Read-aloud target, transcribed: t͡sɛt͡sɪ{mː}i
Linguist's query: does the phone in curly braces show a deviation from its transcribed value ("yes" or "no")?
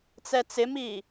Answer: yes